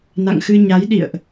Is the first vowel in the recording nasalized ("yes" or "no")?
no